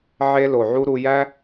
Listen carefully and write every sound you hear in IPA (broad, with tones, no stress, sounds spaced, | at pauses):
ʕ e˧ l o˨ ʕ u˧ ɾ u˧ j æ˦